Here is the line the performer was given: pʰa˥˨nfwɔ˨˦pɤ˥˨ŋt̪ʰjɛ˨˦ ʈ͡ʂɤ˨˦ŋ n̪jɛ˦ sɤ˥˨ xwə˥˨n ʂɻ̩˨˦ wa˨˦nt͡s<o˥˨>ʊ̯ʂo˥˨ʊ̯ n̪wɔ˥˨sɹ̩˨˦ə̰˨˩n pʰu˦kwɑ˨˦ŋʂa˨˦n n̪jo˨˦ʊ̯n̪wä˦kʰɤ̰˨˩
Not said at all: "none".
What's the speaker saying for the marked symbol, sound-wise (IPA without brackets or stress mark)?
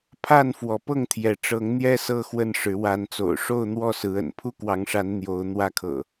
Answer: o̰˨˩